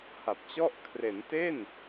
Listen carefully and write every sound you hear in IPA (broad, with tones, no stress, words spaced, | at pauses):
ha˨˩p̚t͡ɕɔ˥˩ʔ kʰre˩˦nte˥˩n